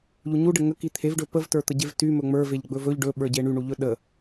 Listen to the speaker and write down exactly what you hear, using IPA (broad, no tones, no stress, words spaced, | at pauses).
ʎuɲuɖə ŋə kit̪ʰevɖɵ pəvtə˞t̪əɟev ty mɵŋ͡mə˞veʎ ɡ͡bɵvɵʎ ɖɵɓə˞ɟe ɳyɳuʎɵ ɗə